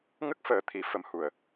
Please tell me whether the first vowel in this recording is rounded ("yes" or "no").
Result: no